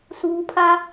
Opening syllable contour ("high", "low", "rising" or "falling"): low